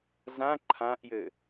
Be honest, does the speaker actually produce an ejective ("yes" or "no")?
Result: no